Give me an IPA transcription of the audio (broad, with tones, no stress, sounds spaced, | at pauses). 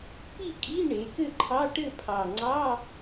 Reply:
p i˥˨ kʼ i˧˥˧ ɳ e˩˧ k ɘ˥˨ ǃʰ ɑ˧˥˧ ʈ ɘ˥˨ pʰ ɑ˨˩ ŋ͡ǀ ɑ˧˥˧